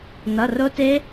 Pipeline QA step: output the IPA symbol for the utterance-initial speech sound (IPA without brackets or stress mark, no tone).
n